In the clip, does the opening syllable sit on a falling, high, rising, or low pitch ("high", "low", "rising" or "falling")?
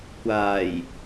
low